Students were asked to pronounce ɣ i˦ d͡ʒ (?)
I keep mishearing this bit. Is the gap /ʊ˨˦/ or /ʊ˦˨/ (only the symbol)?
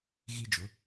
ʊ˨˦